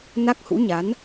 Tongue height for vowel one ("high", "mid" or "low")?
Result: low